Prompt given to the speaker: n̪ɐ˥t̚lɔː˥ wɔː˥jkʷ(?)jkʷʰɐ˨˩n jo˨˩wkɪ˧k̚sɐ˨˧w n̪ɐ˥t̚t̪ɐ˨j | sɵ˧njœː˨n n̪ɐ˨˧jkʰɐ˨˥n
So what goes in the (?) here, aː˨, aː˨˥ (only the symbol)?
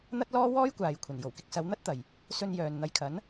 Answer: aː˨